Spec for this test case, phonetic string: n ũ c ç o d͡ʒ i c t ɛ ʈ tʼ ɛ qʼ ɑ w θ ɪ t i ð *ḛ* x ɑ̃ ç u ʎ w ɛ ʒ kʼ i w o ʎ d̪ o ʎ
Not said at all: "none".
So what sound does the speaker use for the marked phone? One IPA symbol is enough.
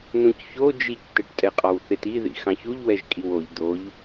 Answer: ḭ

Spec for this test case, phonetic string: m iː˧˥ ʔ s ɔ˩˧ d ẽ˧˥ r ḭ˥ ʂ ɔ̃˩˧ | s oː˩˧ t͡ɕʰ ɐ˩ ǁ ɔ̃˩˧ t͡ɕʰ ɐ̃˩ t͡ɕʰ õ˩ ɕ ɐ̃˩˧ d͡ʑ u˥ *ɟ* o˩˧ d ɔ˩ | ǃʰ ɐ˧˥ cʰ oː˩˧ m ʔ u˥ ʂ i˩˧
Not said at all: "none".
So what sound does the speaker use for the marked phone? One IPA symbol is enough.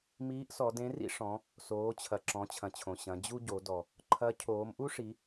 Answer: ɟ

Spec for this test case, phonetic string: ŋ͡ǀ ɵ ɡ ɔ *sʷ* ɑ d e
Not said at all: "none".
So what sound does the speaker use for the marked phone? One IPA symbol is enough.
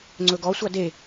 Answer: sʷ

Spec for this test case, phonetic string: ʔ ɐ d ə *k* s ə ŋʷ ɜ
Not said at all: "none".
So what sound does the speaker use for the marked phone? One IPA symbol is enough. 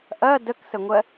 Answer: k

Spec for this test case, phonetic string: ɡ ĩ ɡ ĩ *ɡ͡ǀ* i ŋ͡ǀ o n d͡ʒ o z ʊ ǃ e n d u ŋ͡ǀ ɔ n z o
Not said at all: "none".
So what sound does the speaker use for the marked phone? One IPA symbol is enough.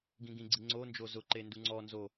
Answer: ɡ͡ǀ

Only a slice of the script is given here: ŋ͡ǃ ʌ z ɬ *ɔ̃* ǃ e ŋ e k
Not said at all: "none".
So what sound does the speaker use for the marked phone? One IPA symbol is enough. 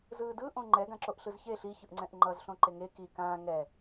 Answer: õ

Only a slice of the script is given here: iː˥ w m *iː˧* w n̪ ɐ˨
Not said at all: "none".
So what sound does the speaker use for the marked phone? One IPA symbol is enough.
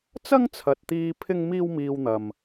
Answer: iː˧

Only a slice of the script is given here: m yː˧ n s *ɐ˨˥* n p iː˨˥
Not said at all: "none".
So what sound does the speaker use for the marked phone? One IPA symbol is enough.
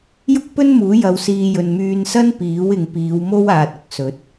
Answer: ɐ˥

